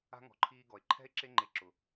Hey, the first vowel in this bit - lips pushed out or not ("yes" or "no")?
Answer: no